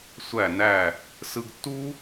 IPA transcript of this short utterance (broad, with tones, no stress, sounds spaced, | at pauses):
sʷ æ˧˩ n æ˧˩ | s ɯ˧ ɡ tː u˥